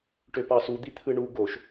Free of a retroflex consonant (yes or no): no